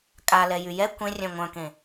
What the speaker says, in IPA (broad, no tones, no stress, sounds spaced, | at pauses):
kʼ a l ɛ j y j ɛ kʷ ẽ rʲ œ̃ ŋʷ œ̃ k ẽ